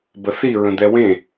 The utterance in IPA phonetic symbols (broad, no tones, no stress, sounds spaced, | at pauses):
b ə θ i ɹ ə̃ d̪ ɛ w ẽ